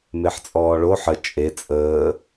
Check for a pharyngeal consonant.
present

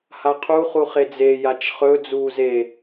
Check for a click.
absent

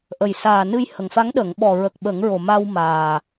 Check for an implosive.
present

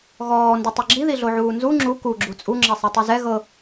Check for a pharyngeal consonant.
present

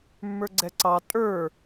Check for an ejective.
present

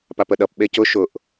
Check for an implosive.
present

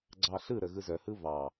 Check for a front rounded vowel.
present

